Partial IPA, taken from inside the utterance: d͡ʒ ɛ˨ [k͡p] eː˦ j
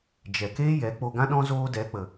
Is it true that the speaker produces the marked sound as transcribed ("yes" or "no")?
no